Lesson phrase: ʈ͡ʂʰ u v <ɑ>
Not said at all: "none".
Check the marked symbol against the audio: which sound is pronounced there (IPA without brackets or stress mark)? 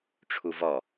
ɔ